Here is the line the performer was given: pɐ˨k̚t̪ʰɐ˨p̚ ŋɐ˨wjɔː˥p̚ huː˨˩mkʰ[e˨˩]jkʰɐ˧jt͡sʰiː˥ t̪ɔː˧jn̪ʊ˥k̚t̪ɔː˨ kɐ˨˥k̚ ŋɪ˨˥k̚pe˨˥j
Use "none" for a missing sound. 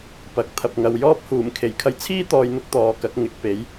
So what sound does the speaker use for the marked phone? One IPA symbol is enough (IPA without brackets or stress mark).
e˨˩